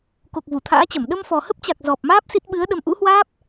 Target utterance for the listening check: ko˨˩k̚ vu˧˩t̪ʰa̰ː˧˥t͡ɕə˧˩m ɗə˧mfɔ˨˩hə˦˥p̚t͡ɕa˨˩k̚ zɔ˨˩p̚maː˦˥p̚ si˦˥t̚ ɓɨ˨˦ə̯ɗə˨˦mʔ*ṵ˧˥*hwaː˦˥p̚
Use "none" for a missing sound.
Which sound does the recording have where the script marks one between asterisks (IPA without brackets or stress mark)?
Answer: ṵ˧˥